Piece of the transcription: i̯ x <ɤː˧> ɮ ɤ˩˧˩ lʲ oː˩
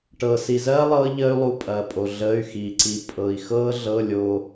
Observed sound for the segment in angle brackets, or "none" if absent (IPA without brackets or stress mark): ɤː˧